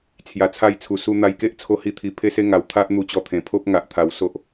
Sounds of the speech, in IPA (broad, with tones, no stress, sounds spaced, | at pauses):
t͡sʰ j a˨˩ t͡sʰ a˧ j t͡sʰ u˨˩ s u˧ n̪ a˧ j k e˦ ʔ t͡sʰ o˥˧ h i˥˧ t̪ʰ i˧ pʰ e˦ s e˦ ŋ a˨˩ w t̪ʰ a˦ ʔ n̪ u˧ t͡ɕ ɔ˧ t̪ʰ ẽ˨˩ pʰ o˦ p̚ ŋ a˨ ʔ t̪ʰ a˨˩ w s o˦ ʔ